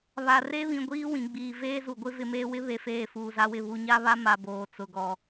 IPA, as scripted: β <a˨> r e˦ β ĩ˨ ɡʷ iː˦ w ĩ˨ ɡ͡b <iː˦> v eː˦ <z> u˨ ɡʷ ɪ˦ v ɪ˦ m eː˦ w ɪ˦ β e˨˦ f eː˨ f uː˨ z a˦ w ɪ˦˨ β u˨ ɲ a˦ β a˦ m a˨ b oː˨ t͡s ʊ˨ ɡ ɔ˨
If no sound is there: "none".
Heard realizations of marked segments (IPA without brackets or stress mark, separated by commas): a˨, iː˨, z